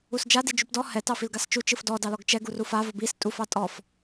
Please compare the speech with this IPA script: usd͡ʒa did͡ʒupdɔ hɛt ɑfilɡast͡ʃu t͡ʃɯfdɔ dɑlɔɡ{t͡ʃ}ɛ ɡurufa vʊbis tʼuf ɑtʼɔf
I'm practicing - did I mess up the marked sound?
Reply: no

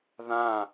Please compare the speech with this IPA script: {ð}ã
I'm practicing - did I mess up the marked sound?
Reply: no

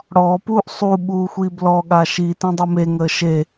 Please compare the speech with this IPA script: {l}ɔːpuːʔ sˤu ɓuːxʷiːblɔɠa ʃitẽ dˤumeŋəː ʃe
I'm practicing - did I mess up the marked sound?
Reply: yes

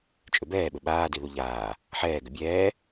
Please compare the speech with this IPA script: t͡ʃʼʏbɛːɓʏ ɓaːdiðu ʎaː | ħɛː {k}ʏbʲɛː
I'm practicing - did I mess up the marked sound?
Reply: yes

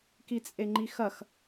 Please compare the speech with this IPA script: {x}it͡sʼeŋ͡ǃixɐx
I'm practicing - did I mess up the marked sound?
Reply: yes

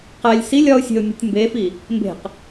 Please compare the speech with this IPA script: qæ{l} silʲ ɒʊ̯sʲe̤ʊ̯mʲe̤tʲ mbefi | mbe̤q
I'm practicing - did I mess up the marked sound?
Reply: yes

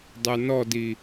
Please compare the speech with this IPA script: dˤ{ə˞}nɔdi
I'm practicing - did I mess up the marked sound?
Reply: no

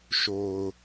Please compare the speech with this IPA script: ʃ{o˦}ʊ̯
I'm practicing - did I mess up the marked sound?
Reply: yes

